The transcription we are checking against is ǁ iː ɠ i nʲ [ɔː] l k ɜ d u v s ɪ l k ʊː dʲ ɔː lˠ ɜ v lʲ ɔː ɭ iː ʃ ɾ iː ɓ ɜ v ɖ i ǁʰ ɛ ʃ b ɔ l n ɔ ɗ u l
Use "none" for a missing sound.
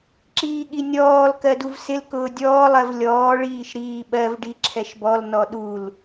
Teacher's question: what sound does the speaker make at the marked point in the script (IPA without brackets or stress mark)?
ɔː